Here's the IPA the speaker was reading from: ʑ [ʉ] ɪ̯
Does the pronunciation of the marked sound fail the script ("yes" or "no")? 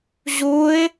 yes